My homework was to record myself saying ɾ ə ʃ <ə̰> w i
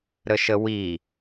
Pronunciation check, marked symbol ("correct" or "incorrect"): incorrect